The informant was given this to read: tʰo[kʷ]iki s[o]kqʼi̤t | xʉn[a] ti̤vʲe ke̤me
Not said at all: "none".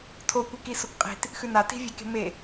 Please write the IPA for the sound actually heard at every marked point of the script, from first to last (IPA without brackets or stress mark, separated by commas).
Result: kʷ, o, a